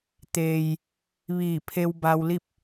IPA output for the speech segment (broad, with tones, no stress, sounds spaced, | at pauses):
t̪ eː˩ j | ʋ iː˧˩ pʰ e˧ w b a˧ w l i˥˨ p̚